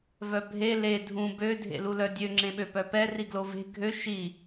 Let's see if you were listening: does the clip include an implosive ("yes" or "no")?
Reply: yes